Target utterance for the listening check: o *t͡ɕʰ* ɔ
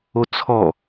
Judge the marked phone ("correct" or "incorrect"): incorrect